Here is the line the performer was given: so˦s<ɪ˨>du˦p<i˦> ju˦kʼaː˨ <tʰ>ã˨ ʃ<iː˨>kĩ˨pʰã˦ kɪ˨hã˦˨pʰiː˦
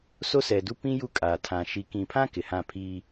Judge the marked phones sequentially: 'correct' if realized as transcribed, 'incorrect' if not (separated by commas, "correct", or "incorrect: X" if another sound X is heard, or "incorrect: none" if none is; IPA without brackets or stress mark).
incorrect: ɛ˨, incorrect: ĩ˦, correct, incorrect: i˨